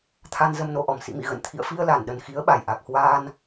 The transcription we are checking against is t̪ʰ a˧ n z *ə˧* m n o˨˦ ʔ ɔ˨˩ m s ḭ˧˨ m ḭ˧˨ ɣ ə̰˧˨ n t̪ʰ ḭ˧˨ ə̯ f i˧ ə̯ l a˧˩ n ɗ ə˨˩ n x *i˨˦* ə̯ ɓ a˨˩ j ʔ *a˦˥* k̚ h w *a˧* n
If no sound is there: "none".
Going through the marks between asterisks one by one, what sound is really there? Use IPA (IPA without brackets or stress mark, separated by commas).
ə˧, i˨˦, a˨˩, aː˧